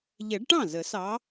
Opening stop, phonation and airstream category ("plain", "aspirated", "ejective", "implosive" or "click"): plain